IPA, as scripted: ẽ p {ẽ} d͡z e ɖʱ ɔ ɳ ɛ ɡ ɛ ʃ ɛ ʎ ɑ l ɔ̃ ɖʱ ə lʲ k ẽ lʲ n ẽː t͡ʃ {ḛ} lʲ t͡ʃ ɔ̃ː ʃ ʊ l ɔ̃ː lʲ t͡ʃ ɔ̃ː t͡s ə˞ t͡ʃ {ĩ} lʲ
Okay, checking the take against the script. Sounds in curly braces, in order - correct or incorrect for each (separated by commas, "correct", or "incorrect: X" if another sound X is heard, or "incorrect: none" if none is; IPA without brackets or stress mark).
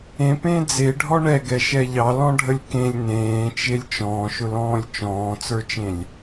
incorrect: ẽː, incorrect: e, incorrect: ẽ